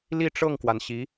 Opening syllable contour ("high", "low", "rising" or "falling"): falling